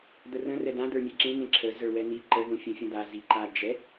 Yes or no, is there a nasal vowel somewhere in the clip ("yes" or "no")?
yes